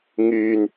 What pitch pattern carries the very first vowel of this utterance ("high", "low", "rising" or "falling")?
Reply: low